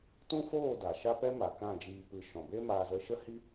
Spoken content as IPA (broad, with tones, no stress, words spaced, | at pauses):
tũ˦foː˦˨ da˨ʃa˦pɛ˦ ma˨kã˦˨d͡ʒiː˧pɨ˧ ʃɔ̃˨be˦ maː˧zə˧ʃə˦ hi˦